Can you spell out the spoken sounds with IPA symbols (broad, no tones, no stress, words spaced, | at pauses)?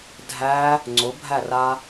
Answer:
dʱæ | ŋ͡ǀʊbʱæra